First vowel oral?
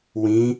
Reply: no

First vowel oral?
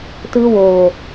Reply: yes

